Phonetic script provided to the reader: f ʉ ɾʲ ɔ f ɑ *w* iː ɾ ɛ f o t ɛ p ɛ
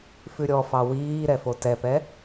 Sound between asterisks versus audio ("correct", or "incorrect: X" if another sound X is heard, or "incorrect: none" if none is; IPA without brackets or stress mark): correct